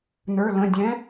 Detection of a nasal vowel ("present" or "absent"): present